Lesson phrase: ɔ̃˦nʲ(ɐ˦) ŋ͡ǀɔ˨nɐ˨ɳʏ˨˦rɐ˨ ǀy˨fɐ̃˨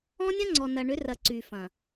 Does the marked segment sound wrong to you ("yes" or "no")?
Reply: yes